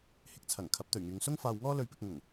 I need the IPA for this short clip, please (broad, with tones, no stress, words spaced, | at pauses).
hɪ˧k̚t͡sʰɐ˨˩ŋ kʰɐ˨˥p̚t̪ɵ˨˩ɥŋyː˨ŋ sʊ˥ŋfaː˧wŋɔː˥ lɵ˧ɥpɪ˧k̚ ŋʊ˨˩ŋ